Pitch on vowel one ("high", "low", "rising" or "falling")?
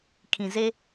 low